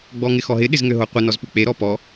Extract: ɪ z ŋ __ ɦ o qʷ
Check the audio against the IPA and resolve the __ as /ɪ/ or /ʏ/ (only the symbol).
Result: ʏ